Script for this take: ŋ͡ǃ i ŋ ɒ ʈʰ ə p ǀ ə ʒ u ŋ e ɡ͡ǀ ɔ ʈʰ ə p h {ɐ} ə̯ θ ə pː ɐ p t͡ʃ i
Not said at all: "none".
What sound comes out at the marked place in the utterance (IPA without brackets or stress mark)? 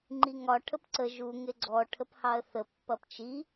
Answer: ɑ